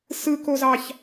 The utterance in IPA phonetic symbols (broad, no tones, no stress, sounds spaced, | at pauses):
s ɯ k o z ɑ ç